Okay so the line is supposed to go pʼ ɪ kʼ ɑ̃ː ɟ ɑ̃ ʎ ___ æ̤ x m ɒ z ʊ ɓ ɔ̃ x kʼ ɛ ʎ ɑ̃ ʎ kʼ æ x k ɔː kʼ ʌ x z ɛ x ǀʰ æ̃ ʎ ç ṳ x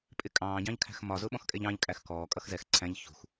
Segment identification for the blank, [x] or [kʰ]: kʰ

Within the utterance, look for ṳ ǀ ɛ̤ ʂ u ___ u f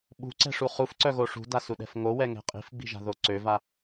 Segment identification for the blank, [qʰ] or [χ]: χ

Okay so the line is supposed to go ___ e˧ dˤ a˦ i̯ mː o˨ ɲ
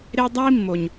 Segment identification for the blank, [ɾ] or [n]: ɾ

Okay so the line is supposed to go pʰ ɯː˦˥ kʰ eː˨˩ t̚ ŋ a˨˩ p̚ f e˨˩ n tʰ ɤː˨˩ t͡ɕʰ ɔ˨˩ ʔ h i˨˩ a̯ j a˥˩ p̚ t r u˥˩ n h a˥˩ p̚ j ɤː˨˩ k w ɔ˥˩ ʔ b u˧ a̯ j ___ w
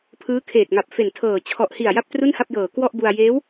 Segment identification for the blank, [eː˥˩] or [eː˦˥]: eː˦˥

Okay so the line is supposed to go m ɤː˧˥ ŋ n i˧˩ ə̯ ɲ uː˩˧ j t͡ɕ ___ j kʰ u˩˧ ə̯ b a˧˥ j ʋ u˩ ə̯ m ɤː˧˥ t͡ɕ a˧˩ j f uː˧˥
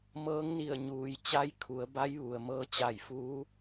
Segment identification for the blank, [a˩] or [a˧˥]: a˧˥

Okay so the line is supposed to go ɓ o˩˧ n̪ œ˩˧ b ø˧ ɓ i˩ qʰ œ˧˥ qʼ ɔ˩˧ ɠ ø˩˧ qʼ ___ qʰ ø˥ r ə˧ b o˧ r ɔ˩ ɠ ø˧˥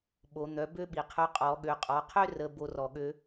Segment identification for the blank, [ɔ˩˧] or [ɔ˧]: ɔ˩˧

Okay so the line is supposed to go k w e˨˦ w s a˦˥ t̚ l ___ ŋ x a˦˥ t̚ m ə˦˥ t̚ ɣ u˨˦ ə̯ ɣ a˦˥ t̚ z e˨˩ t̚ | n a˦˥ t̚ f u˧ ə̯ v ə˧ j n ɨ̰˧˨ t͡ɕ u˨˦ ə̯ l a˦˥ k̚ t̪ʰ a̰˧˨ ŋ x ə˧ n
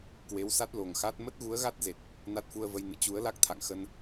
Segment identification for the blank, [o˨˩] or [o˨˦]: o˨˩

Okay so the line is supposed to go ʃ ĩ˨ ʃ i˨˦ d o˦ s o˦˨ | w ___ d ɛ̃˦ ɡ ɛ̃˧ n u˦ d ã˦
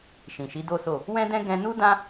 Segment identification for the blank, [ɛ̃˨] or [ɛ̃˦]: ɛ̃˦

